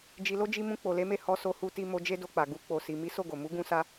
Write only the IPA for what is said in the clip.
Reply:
d͡ʒ i˧ l o˦ d͡ʒ i˧ m ũ˧ k͡p o˨ l e˨˦ m e˦˨ h ɔ˧ s o˧ h u˧ t i˧ m o˧ d͡ʒ e˦ d o˧ k͡p a˨ ɡ u˧ k͡p o˨ s i˨ m i˨˦ s o˦˨ ɡ o˨ m u˨˦ ɡ ũ˧ s a˧

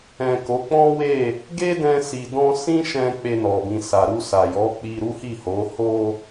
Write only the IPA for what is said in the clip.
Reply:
ɛ̃˨ k o˨˦ k͡p ɔ̃˦ w e˦˨ | ɡ e˦ d ɛ̃˧ s i˨ d ɔ̃˧ s ĩ˦ ʃ ɛ̃˧ k͡p e˧ n ɔ˨ b ĩ˨ s a˨ ɾ u˧ s a˨ j ɔ˨˦ k͡p i˧ ɾ u˦ h i˦˨ h o˨˦ h o˧

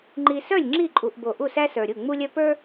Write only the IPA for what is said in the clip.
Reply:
ŋ͡ǃ i˨ s œ˥˨ lʲ ŋ͡ǁ i˥˨ ǃʼ u˨ ʔ b o˨ ʔ u˥˨ s æ˥ s ə˞˨ ɾʲ u˥˨ ŋ͡m u˥ lʲ œ˥ p ə˞˥

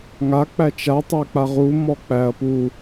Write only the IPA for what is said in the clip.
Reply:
ŋ a k͡p æ t͡ʃ a tˤ æ k͡p a ʁ u m ɔ k͡p æ ɐ̯ p u

